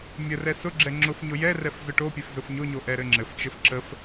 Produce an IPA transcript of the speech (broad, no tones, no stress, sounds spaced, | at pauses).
mʲ ə r ɛ s ʊ ɡ͡ǁ ɛ ŋ͡ǁ ʊ f ɲ ʊ j ɛ r ɛ f z ʊ ʈ o pʲ ɛ f z ʊ f ɲ ʊ ɲ o ʔ ɛ ɾ ɘ ŋ͡ǁ ɘ f t͡ʃ ɘ f ǁ ə f